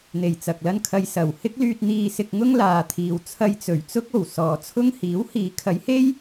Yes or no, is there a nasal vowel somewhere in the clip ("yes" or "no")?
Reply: no